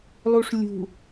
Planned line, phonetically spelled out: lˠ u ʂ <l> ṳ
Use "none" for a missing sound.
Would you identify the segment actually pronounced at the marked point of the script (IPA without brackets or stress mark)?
lʲ